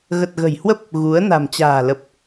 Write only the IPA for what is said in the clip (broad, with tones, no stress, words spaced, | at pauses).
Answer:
ɣə˨˩t̚ɣə̤˨˩jhwə˦˥p̚ | ɣu˨˦ə̯ na̤˨˩mt͡ɕa̤ː˨˩lə˨˩p̚